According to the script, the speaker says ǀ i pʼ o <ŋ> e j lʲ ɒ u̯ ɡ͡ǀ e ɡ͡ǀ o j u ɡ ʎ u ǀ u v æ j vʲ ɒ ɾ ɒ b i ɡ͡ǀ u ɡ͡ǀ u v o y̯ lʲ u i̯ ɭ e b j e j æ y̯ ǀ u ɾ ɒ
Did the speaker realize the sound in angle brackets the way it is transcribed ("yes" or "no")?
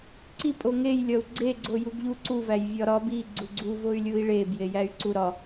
yes